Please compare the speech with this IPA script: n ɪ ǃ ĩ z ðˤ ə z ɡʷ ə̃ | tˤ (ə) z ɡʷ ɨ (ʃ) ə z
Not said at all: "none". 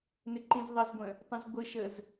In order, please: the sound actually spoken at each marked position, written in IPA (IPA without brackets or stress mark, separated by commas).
ə̃, ʃ